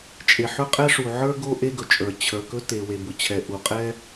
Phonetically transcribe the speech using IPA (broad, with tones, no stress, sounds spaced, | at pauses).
t͡ʃʼ e˩ ħ ɵ˥ qʼ ɛ˥ ʂ u˩ ʕ ə˞˥ ɡ o˥ ʔ e˥ ɡ ɵ˩ t͡ʃʼ ə˞˩ t͡ɕʰ ə˞˩ k ɵ˥ t e˩ w e˩ b ʊ˩ t͡ɕʰ ɛ˩ ʔ u˩ qʼ ɛ˥